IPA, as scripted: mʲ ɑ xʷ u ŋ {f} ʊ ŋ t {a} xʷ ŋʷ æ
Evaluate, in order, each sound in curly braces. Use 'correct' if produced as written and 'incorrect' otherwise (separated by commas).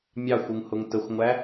incorrect, incorrect